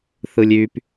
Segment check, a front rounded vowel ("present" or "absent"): present